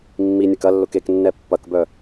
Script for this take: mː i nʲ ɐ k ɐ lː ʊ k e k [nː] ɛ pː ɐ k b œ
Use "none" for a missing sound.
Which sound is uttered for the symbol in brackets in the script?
nː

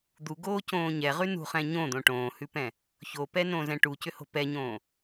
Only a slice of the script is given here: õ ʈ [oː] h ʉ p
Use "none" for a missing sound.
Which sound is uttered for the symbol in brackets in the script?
õː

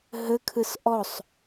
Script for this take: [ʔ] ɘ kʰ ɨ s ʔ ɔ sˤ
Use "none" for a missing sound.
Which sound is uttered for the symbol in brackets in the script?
ɦ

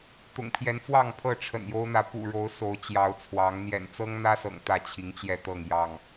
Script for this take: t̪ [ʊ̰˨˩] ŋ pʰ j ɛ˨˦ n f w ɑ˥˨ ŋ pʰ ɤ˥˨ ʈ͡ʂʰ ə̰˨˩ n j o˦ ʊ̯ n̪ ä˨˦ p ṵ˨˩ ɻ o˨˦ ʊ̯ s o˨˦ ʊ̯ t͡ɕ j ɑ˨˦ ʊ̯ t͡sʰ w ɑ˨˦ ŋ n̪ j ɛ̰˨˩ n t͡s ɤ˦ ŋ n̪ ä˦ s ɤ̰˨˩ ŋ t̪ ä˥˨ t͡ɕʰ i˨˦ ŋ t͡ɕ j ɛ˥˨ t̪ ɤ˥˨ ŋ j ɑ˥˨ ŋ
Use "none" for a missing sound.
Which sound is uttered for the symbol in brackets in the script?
ʊ̰˨˩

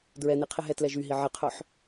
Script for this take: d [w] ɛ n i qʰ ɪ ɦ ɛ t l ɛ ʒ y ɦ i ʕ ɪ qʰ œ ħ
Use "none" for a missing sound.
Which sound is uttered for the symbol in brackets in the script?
ɹ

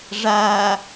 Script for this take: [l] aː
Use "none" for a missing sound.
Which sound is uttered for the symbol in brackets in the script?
ʐ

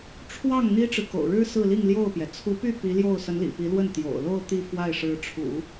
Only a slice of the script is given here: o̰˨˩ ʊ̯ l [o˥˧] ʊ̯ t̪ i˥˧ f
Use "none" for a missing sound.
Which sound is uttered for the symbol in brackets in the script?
o˥˧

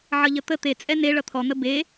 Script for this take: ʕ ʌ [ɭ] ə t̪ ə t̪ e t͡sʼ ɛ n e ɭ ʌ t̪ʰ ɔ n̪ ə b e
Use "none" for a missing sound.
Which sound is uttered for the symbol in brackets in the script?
ʎ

